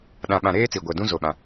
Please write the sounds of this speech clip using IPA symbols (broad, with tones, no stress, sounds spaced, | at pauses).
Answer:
ɗ ã˨ ɓ ã˨ ɾ eː˦ t͡s i˨ ɡʷ ɛ˨ d ũ˦ z o˦ ɓ ã˦